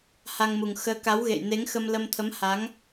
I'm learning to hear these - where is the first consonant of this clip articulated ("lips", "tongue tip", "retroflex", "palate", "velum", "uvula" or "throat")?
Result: throat